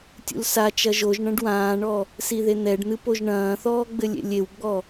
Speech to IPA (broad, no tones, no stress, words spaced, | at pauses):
tʲṵlsa t͡ʃɐʒoʒ ɳɐ̃ɖwãːɳɔ | siðen̪ɛɖn̪ɨ poʒɳɐ̃ːθɔː ɡ͡bɘlʲḛlʲewɡ͡bɔ